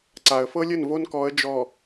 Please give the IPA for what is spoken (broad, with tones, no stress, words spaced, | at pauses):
ǀa˨ə̯fɤ˦lʲɘ˦˨n vo˦nkɔ˨˦ə̯ d͡ʒɔ˨